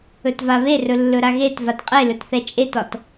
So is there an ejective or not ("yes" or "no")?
yes